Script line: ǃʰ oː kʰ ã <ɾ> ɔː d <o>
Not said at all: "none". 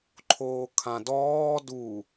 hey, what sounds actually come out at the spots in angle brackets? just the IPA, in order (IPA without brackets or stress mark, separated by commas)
d, u